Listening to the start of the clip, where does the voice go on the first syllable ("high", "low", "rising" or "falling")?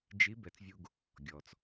rising